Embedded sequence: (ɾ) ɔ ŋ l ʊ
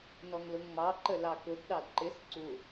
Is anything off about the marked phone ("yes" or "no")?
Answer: yes